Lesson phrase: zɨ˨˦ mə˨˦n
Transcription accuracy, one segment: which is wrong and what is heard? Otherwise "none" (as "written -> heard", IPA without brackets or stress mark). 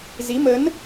ɨ˨˦ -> i˨˦